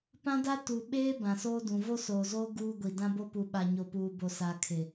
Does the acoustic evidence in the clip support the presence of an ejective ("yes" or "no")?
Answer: no